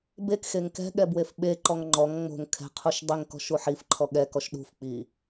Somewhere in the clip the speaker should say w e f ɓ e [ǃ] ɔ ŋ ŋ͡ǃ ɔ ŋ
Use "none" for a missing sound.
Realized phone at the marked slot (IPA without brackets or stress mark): ǃ